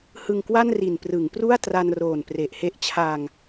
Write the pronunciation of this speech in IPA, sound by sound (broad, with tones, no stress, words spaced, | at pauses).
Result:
hɯ˨˩ŋkwa˥˩n ri˨˩nprɯ˩˦ŋpru˥˩a̯ tra˧n roː˨˩npre˨˩ʔhe˦˥ʔ t͡ɕʰa˧ŋ